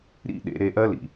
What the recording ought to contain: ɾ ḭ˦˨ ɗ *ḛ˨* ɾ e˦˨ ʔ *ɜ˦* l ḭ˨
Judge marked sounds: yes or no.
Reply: yes, yes

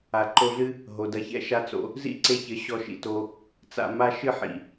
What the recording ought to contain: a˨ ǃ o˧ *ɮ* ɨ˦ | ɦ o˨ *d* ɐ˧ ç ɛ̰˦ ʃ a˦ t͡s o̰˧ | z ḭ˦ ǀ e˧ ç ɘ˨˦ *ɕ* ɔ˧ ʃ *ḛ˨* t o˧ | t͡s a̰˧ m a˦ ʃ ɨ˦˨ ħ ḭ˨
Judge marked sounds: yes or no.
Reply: yes, yes, yes, no

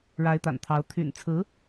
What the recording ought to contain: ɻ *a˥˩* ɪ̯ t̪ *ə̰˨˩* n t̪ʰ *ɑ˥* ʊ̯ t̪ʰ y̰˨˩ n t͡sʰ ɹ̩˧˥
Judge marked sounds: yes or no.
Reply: no, no, no

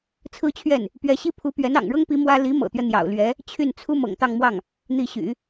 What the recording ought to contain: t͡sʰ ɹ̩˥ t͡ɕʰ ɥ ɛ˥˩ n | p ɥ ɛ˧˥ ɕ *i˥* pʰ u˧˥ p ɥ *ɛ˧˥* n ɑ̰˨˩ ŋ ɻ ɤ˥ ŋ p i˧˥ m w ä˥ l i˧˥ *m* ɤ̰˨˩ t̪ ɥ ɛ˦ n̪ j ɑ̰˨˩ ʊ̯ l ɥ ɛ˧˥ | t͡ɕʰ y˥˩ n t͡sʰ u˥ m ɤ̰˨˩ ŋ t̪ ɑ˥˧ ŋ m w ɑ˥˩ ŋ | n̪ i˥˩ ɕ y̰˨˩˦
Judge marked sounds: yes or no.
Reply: yes, yes, yes

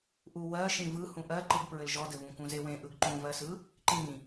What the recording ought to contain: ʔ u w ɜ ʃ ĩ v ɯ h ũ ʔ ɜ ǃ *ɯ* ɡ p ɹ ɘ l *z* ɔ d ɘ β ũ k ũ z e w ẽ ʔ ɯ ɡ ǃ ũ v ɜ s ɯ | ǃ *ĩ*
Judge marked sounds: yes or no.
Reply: yes, no, yes

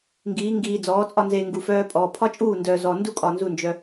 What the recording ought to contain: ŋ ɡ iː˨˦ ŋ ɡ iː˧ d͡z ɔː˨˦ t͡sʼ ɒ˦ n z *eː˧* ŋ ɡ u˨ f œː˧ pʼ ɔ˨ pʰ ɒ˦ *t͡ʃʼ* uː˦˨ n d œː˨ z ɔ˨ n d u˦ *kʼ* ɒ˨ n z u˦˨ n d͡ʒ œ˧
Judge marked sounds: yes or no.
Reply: yes, yes, yes

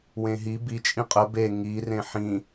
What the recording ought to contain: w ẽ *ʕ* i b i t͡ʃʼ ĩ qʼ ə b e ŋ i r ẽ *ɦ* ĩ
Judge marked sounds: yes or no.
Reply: no, no

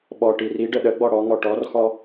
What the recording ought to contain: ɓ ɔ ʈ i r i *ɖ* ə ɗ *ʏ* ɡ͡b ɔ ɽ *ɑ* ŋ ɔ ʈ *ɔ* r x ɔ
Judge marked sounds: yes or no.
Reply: yes, no, no, yes

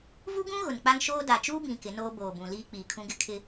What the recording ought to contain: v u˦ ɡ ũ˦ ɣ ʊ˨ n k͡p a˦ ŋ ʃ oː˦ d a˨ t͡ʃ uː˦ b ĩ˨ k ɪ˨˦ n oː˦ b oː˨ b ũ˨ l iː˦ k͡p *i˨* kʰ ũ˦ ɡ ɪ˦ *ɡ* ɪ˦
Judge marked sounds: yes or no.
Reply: no, no

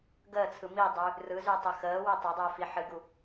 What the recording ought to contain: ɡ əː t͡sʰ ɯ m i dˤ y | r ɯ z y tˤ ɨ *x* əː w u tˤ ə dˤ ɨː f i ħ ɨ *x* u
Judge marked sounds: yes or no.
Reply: yes, no

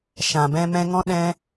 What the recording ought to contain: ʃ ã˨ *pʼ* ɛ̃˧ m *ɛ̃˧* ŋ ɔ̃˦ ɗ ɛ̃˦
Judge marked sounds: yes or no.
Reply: no, yes

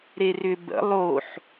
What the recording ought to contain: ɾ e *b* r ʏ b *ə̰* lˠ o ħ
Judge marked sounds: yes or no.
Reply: no, yes

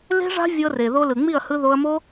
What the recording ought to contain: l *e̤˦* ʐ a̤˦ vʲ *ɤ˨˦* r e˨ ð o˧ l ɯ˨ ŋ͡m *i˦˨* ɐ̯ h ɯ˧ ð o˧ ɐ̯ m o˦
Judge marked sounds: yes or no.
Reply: yes, no, yes

